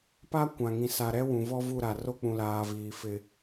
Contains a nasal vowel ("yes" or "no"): yes